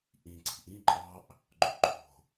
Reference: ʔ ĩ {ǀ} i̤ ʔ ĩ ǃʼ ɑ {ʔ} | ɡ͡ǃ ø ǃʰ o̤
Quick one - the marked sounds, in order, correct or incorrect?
correct, correct

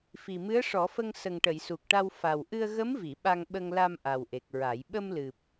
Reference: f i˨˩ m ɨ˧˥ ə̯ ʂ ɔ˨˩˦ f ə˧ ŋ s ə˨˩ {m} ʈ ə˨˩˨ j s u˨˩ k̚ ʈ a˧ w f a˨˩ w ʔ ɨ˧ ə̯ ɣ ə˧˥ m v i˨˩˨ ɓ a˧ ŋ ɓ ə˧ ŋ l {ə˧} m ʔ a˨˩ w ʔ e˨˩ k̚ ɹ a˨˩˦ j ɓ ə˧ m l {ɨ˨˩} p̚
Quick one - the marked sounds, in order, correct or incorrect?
incorrect: ŋ, incorrect: a˧, correct

